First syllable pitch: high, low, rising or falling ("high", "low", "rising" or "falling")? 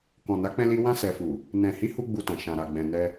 low